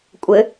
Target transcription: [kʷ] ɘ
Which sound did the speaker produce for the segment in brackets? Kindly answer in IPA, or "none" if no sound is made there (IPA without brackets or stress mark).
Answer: kʷʼ